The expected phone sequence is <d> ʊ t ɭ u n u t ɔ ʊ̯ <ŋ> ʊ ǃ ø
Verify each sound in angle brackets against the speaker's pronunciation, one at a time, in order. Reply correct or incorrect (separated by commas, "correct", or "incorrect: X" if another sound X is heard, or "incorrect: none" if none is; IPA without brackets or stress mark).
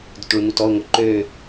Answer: correct, correct